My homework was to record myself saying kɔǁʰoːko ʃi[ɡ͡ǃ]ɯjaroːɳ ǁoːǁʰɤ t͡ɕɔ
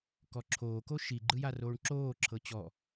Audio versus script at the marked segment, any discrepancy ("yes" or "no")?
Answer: no